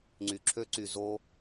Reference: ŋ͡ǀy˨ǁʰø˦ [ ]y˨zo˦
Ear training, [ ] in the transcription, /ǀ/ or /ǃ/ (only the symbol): ǀ